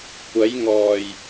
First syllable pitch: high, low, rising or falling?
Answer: rising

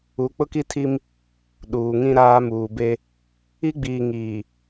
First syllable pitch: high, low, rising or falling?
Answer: rising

